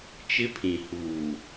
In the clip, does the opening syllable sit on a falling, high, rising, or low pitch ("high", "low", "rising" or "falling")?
high